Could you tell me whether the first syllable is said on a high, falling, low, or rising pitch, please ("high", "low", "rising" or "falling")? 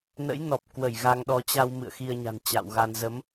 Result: rising